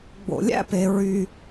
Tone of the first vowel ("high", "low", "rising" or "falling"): low